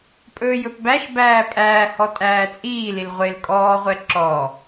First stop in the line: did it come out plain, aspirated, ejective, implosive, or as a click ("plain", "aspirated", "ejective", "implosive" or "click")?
ejective